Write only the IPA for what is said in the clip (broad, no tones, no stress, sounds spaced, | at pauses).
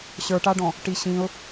ɕ ə˞ ʈ a ɖ ɔ̃ | ʈ i ɕ ĩ ʊ̯